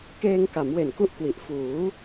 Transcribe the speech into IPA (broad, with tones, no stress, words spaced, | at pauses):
keː˧ŋka˩˦mwe˨˩n ku˥˩ʔkwi˨˩ʔ fuː˩˦